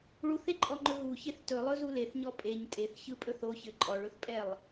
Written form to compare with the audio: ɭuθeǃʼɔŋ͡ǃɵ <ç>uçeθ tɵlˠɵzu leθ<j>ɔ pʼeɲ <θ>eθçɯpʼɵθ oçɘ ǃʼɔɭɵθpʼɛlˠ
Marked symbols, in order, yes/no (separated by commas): no, no, no